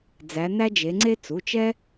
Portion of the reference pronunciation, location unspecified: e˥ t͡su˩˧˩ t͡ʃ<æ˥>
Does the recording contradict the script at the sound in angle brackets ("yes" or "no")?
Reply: yes